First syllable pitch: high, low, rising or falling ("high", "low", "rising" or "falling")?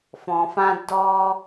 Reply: low